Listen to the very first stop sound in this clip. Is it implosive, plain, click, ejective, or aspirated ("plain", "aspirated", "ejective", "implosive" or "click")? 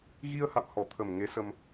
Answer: aspirated